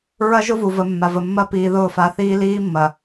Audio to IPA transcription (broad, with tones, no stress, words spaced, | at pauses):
ɹɐ˦ʒʊ˦vu˨və˨ mːa˨və˨mːɐ˦ piː˨ðʊː˦˨ fa˨˦θiː˦liː˦mːɐ˨